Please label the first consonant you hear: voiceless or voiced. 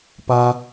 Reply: voiceless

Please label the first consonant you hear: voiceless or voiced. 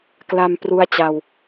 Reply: voiceless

